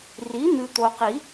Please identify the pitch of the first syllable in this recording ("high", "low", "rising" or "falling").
rising